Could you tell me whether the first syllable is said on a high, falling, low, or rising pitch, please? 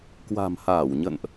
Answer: low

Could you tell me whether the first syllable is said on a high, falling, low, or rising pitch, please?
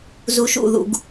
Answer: low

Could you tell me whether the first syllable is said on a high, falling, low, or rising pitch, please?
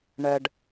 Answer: low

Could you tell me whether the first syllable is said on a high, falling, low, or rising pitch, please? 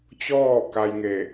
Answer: falling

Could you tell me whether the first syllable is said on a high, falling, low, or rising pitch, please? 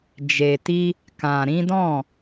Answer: low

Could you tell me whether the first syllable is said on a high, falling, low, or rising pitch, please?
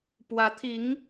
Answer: rising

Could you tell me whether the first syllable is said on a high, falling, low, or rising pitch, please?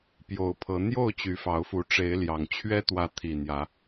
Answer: rising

